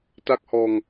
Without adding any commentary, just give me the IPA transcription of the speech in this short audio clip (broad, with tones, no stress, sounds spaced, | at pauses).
t a˥˩ k̚ h ɔː˧ ŋ